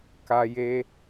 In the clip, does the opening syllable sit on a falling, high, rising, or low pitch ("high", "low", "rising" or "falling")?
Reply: low